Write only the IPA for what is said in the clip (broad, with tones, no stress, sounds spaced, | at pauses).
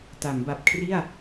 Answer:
t a˩˦ m b a˨˩ p̚ kʰ r i˥˩ a̯